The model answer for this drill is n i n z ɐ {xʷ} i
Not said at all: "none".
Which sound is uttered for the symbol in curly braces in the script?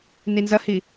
h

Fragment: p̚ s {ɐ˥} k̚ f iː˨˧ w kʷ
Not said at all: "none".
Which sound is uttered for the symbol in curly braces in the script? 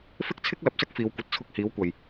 ɐ˥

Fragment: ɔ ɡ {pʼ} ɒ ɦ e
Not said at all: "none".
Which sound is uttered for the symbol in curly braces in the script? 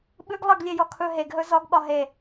ɓ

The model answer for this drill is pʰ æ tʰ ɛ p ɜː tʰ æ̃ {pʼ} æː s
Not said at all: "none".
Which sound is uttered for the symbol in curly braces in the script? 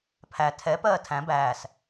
b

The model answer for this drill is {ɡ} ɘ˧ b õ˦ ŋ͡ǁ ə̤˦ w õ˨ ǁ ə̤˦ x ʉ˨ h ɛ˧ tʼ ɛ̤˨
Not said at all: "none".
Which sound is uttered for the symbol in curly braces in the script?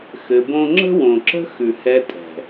x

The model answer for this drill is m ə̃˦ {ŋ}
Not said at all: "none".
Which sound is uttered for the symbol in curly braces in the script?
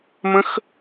x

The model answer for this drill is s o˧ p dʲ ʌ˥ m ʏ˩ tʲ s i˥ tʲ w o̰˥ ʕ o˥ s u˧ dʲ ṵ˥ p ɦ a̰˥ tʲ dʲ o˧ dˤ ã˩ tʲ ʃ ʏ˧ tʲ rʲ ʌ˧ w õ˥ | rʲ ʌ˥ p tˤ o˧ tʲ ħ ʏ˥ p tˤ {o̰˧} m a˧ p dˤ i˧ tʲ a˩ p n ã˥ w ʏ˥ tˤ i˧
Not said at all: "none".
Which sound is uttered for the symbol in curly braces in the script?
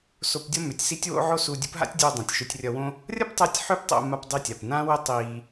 o̰˧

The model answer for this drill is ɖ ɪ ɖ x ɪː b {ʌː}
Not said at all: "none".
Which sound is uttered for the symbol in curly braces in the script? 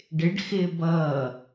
ʌː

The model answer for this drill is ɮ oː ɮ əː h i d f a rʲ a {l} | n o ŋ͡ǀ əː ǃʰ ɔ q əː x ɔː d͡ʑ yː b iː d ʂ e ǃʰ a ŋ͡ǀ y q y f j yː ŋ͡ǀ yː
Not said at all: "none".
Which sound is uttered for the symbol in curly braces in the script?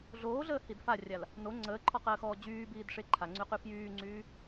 l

